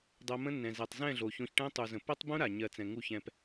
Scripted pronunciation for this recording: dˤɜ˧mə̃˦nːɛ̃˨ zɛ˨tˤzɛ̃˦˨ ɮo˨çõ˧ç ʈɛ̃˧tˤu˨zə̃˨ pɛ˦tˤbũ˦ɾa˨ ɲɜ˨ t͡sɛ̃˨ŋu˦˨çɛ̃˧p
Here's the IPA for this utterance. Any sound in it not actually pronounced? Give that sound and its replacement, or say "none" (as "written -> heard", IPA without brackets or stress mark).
none